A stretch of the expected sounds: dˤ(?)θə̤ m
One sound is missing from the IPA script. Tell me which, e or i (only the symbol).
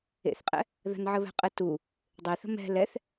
e